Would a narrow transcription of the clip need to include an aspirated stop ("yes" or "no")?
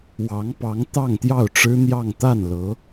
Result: no